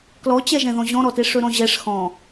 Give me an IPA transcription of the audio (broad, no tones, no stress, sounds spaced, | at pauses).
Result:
k l ɔ t͡ɕ ɛ ʒ ɛ̃ ð ɔ̃ ʑ ɔ̃ ɾ ɔ t e ʂ ɵ ɾ ɔ̃ ʑ ɛ ʂ x ɔ̃